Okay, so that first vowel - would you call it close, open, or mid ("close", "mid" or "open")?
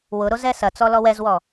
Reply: close